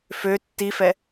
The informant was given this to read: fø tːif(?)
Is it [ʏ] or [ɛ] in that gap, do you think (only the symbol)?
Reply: ɛ